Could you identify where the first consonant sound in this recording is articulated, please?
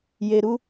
palatal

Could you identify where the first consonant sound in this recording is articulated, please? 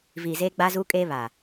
labial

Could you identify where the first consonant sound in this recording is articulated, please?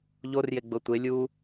palatal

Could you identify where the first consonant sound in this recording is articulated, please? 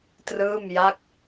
alveolar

